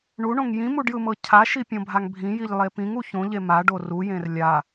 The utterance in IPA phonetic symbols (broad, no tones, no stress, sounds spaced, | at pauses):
ɳ u ɳ õ ŋ j ĩ m u ɖ j ɯ m ɤ cʰ a ʃ i pʲ õ bʱ a ŋ bʱ ĩ j i ʎ lˠ e p ĩ ŋ u ç õ ʎ e m a ɖ o r u j ẽ r lʲ a